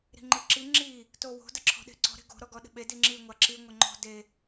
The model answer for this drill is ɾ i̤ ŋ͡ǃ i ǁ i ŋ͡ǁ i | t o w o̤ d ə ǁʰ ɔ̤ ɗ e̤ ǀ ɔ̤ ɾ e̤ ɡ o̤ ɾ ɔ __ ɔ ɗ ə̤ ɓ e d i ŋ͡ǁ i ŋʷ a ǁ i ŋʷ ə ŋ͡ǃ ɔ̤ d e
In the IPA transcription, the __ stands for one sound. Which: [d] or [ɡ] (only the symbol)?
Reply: ɡ